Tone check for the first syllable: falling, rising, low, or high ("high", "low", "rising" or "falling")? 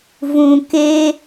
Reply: low